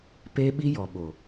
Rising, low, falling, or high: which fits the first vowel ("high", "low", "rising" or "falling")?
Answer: high